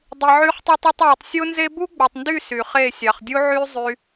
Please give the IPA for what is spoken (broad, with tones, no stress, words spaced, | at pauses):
dˤi˨ʕy˧χtˤi˧tˤ o˧tˤwø˨tˤsʲo˦nze˦ bu˦ɡ͡bo˨tˤndy˦˨ sy˨χe˦˨ sʲɑ˨χdʲu˦ ʕy˦ zˤy˧